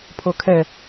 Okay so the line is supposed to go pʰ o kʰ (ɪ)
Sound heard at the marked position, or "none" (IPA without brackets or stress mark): ɛ